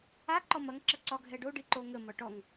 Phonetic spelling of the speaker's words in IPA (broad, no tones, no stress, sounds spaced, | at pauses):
a ǃ ɔ m ɐ ŋ ǁ ɐ ǀ ɒ ɡʱ ɛ ɖ o ɖ i ǃ o ŋ ə m ɒ ʈ ɔ ŋ